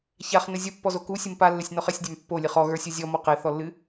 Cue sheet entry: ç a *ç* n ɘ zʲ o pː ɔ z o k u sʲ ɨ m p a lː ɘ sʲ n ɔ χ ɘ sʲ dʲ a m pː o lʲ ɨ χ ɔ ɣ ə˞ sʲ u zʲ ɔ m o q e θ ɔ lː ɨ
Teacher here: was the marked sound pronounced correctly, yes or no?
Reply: no